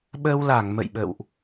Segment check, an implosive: present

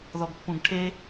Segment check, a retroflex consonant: present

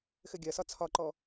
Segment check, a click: present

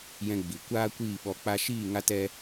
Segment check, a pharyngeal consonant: absent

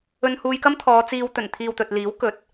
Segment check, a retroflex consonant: absent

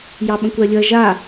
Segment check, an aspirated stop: absent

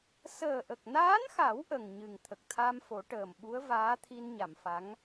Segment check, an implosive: present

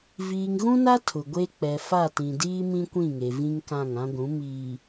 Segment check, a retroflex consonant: absent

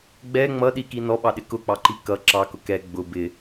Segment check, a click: present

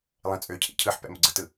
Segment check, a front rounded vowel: present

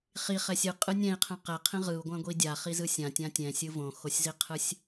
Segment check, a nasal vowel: present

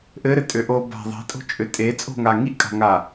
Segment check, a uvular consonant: absent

